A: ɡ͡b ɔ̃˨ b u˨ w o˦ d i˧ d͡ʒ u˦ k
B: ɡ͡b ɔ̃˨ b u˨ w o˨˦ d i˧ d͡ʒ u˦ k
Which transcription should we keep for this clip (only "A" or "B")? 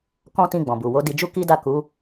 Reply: B